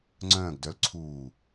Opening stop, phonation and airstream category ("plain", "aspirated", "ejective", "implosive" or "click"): click